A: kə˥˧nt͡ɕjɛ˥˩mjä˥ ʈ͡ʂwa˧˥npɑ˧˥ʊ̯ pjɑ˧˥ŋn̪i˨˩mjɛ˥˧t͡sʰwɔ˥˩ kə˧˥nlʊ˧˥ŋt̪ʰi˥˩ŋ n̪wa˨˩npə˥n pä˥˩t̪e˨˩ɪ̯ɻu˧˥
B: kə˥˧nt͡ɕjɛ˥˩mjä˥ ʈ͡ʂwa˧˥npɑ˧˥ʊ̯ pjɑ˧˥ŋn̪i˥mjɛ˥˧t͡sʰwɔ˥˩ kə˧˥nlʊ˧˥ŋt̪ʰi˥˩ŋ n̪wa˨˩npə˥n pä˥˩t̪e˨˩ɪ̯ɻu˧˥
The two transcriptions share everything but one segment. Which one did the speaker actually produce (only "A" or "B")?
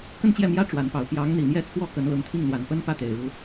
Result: A